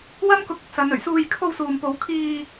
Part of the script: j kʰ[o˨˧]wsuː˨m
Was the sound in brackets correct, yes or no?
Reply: no